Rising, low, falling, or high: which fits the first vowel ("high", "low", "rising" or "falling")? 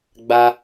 high